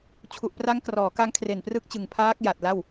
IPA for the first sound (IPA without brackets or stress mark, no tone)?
t͡ɕʰ